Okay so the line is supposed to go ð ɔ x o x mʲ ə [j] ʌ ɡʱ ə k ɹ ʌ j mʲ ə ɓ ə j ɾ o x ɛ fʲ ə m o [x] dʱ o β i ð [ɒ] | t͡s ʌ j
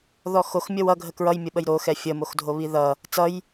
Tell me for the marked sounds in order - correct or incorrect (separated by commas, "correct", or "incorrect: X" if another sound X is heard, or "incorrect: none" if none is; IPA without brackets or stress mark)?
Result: incorrect: w, correct, incorrect: ʌ